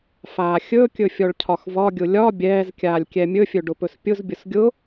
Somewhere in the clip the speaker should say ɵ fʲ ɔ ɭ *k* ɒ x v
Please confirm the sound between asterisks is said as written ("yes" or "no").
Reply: no